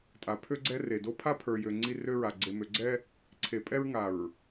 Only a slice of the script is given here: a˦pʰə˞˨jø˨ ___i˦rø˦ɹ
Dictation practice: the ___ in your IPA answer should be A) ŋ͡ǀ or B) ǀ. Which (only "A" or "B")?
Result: A